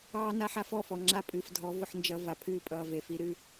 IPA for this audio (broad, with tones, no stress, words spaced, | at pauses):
ɑː˧ na˧ħa˧fɔ˦˨fɔ˨ ŋ͡ǁa˦pʼɨː˨fdʱɔ˨˦ vʊ˧ħnd͡ʒʌ˧ va˨pʰɨː˦ pʼʌː˨ve˨fi˧ɾɨ˧